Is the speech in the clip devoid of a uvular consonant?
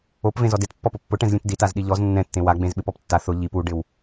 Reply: yes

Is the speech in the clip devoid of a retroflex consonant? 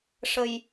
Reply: no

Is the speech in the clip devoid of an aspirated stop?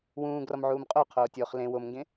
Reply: no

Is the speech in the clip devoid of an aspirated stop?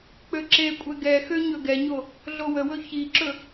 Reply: yes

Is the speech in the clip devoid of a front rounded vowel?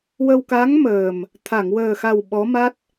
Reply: yes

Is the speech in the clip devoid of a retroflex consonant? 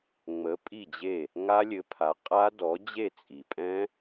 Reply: yes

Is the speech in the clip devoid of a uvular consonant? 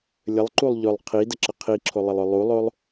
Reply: no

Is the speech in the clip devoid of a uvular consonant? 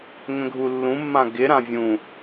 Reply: yes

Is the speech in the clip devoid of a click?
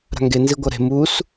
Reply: yes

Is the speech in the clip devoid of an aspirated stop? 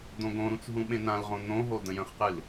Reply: yes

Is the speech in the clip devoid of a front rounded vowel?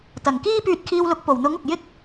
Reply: no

